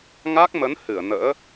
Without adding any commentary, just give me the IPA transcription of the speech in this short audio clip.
ŋa˦˥k̚mə˨˦n hɨ˧˩ə̯nə̰ː˧˥

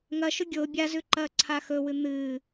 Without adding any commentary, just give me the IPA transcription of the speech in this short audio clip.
ŋɐʃɵ ɡʲo bʲazʉǃɐː ǀʰaxɵwɨ n̪ɨː

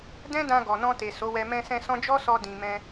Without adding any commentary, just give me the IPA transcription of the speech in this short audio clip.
dɛ̃˦dã˧ ɡɔ˨nɔ̃˧te˨ so˨˦wɛ˧ mɛ̃˧sɛ̃˧ sɔ̃˦ d͡ʒɔ˦sɔ˧ dĩ˨ mɛ̃˧

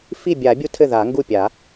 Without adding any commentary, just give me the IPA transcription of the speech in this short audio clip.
fi˥˩bʲa˨˩˦bʲu˦ tʰɘ˥˩ða˨˩˦ŋɡu˥˩pʲa˨˩˦

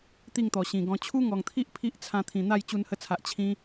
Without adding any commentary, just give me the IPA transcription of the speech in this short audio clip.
t̪i˥˧ŋt̪ɔ˨˩ɕĩ˨˩ɡɔ̃˧ t͡ɕʰu˦ŋɔ˨˩ŋt̪ʰi˦ʔ pʰi˦ʔ t͡sʰã˧t̪ʰĩ˨˩ n̪a˥˧j t͡ɕu˧nhə˧t͡sʰa˨ʔ t͡ɕʰĩ˧

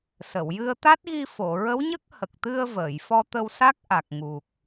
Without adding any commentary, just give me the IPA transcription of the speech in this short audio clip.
sə˨˩˨wjɨ˧ə̯ t̪a˦˥t̚ɣi˧fo˨˩˨ ɹə˧˥wɲə˦˥k̚hə˨˩k̚t̪ɨ˧ə̯ vəː˨˩˨j fɔ˧t̪ə˧wsa˦˥k̚ ʔa˨˩k̚ŋu˨˩k̚

